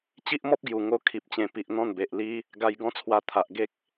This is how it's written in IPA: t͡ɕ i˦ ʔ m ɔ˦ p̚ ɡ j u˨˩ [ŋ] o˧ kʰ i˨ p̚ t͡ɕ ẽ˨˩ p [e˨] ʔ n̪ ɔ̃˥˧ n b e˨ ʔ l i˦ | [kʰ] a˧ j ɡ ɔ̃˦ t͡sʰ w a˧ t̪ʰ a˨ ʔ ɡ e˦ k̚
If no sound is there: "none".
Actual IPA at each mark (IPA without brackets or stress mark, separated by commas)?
ŋ, i˨, ɡ